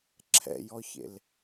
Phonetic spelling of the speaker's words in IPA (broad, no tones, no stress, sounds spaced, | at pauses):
ǁʰ ɛ̰ j ɔ ç ḛ l